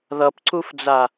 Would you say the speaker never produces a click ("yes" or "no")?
no